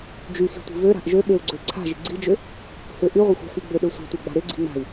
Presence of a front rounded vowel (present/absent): present